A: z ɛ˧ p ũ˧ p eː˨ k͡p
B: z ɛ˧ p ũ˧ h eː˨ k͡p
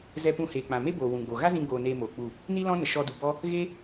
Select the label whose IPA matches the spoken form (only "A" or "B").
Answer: B